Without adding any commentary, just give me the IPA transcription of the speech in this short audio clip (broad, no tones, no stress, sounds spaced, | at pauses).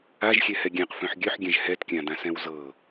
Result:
a ʒ xʲ ɛ h ɛ ɡʲ ɛ̃ q f œ̃ ħ ɡʲ œ ħ ɡʲ ɛ̃ ʒ h ɛ t kʲ ã d ã s ɛ̃ w z ɤ